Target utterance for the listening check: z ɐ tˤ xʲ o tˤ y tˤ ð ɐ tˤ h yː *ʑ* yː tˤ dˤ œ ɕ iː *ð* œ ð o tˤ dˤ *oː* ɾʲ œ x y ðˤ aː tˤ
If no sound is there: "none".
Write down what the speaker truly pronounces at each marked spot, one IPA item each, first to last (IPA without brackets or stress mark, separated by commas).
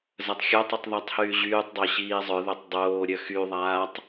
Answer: ʑ, zˤ, oː